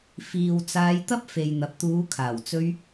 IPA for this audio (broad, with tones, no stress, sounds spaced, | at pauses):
f iː˨ w t͡s aː˧ j t̪ ɐ˥ p̚ f e˨ j n̪ ɐ˨ p̚ t̪ uː˨˧ kʰ aː˨˩ w t͡s ɵ˧ ɥ